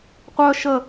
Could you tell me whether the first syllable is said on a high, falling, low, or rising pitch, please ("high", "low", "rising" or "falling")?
high